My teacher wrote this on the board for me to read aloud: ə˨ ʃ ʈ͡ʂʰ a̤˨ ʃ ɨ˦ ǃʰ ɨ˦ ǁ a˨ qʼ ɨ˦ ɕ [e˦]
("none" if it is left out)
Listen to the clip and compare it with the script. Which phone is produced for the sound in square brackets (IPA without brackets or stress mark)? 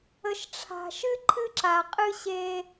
e˦